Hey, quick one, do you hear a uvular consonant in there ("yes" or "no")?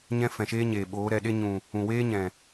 no